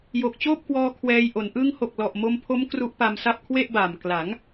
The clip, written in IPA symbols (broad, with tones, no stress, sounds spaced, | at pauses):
j o˨˩ k̚ t͡ɕ oː˥˩ p̚ k w ɔː˧ kʰ w ɛː˧ j ʔ o˩˦ n ʔ ɯ˧ ŋ h o˨˩ k̚ l ɔ˨˩ ʔ m o˧ m pʰ o˦˥ m k r u˦˥ ʔ p a˧ m s a˥˩ p̚ kʰ w e˥˩ ʔ b aː˨˩ m k l a˩˦ ŋ